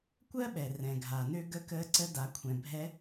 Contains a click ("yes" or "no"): yes